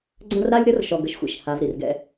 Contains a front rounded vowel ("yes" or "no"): no